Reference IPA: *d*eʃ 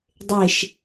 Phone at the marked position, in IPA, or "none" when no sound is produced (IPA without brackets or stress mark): dˤ